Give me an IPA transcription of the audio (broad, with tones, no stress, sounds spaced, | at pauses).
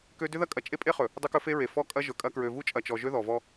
k ø˦ d ʏ˦ ð ɐ˦ kʼ ɐ˨ t͡ʃʼ e˦ pʼ e˦ χ ɵ˨ | dˤ ɵ˦ k ɵ˦ f e˦ ɹ e˨ f ɔ˦ kʼ ɐ˦ ʒ ɵ˨ kʼ ɐ˦ k ɹ ø˨ v u˦ t͡ʃʼ ɐ˨ t͡ʃ ɔ˨ ʒ ø˦ ð ɔ˨ v ɔ˦